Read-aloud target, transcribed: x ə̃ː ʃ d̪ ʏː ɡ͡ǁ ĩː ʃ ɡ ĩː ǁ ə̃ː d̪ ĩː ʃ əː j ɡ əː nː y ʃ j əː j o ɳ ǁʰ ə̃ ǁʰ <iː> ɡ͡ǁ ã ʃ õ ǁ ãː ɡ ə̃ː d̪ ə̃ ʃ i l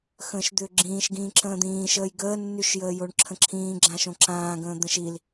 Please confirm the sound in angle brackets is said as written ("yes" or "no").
no